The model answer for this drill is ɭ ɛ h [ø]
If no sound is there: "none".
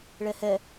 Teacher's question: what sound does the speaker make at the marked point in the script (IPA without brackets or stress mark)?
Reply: ɛ